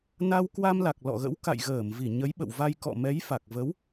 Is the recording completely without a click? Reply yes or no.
yes